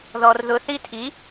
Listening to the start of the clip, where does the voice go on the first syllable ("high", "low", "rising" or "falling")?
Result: high